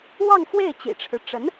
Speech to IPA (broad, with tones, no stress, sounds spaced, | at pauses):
w ɑ˥˧ ŋ x w e˥˩ ɪ̯ t͡ɕ ḭ˨˩ ʈ͡ʂʰ ɻ̩˦ ʈ͡ʂ ə˧˥ n